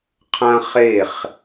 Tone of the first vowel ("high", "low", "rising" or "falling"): high